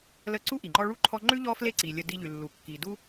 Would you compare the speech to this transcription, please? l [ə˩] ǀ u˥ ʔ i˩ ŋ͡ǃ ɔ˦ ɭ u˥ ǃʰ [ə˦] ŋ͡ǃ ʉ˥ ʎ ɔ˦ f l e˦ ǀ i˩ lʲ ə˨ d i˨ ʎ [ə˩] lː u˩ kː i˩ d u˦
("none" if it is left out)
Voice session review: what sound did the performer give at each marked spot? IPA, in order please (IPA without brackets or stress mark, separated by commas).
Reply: ə˦, ɔ˦, ʉ˩